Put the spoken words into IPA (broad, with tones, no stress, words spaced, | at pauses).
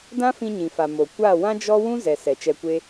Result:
dã˦fĩ˧ɲĩ˨fa˨ mo˨ kʷa˦˨ wã˦d͡ʒɔ˦ wũ˦zɛ˨ sɛ˨t͡ʃɛ˧kʷe˦